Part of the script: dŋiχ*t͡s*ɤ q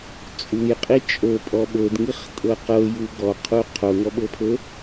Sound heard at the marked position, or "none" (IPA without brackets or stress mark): tʼ